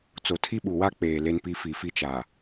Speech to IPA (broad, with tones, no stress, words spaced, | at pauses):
t͡so˨tʰi˦ɓu˨wa˦ k͡peː˨ le˦npi˦ fi˨fi˦t͡ʃaː˨